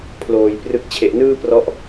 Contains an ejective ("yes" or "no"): no